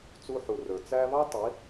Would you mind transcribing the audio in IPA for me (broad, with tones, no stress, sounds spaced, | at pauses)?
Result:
t͡s u˧ ħ u˨ r ə˞˨ t͡s æ˧ β ɑ˦ tˤ i˨˦